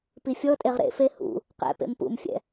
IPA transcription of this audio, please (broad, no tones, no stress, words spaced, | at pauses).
pifʲɔtʼeʁ ɾḛfe hṵ | qɛ̰pḛm pṵmfʲɛ̰